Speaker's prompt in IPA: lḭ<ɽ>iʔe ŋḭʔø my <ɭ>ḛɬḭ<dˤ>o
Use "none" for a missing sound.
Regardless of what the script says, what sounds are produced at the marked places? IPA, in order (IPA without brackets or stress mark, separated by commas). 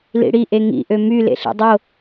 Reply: ɽ, l, dˤ